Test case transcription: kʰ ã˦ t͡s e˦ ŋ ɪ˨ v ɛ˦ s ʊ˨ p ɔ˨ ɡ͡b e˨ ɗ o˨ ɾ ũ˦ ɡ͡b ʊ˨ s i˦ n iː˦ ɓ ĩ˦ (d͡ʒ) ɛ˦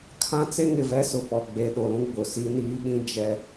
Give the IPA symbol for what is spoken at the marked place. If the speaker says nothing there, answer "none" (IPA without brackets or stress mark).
d͡ʒ